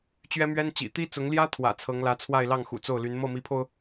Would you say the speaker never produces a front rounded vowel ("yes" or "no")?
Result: no